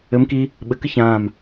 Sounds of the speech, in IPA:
ɘ m k i | ɓ ɘ k ɨ ç ãː m

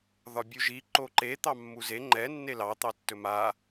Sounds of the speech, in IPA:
ð ɒ bʲ u ʒ i ǃ o ǃ e t̪ ɑ mː u z e ŋ͡ǃ ɛ nː e l ɑ t̪ ɑ tː ɵ m a

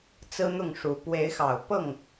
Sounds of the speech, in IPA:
t͡s ɹ̩˦ n̪ ʊ˥˨ ŋ ʂ u˨˦ p w e˨˦ ɪ̯ x ɑ˨˩ ʊ̯ p ɤ˥˨ ŋ

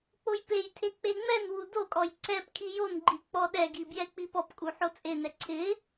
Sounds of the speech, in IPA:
k͡p o j p e j tʰ e k͡p e ŋ͡m ɛ n w u d o kʼ ɔ j ǀ ɛ p kʰ i j o n ɡ͡ǃ i k͡p ɔ ɗ ɛ ɡ i b j ɛ k͡p i p ɔ p kʼ u ħ o t͡sʼ e n ɛ ǀʰ ɪ

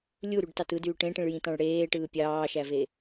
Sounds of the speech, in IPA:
lʲ u ɾ y ɖ t ɑ t ɯ d yː ʈ ẽ ʈ ĩ ɭ j ĩ t ɑ̃ ɭ ɽ eː ʈ ɯː pʲ ɑː ʃ æ v e

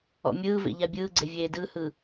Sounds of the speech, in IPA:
ɔ̰ mʲ ɯː v ḛ ʎ a bʲ ɯː ɡ͡ǀ e vʲ eː d ɯ h ɯ

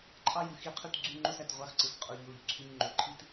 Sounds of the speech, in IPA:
ǃʼ ɑ˦ j ɯ˨ x i˦ qʰ y˦ t ɡ͡ǀ y˦ ŋ͡ǃ o˦ s æ˨ t ʁʷ ɑ˦ x ǀ ɯ˨ s qʼ u˨ ʎ o˨ ʎ ǀʰ y˦ ɲ ŋ͡ǃ o˨ ǃʰ i˦ t

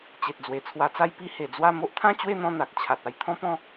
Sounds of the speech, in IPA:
t͡ɕ e˨ t̚ d͡z w e˨˩ t͡sʰ w a˧ t͡s a˦ j p i˧ h e˨˩ d͡z w a˥˧ m o˦ ʔ t̪ʰ ã˥˧ t͡ɕ w e˥˧ n̪ ɔ̃˦ n̪ a˨ k̚ t͡ɕʰ a˨ t̚ a˥˧ j t̪ʰ ɔ̃˦ p ɔ̃˥˧

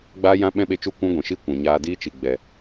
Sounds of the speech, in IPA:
ɡ͡b aː˦ j ã˦ ɓ ɛ̃˦ ɓ e˧ t͡ʃ u˦˨ kʷ ũ˦ ɡʷ ĩ˨ ʃ i˦ kʷ ɛ̃˨ ɲ aː˧ d iː˦ t͡ʃ i˨ ɡ͡b ɛ˨

